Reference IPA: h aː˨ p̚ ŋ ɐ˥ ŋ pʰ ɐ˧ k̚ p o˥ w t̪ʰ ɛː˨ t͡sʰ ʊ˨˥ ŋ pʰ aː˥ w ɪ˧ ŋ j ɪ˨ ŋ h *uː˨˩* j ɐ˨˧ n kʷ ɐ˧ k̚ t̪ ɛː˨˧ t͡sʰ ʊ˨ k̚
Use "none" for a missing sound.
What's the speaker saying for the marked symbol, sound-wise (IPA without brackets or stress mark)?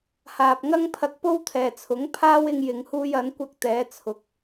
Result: uː˧